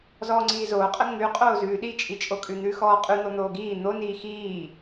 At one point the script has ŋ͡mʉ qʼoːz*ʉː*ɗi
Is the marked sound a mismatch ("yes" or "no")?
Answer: no